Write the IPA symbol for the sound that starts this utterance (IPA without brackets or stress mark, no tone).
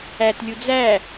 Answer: æ